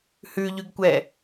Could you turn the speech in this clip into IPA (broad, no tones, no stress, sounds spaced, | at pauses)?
h ʉ ʎ ʉ ɡ kʷ ɛ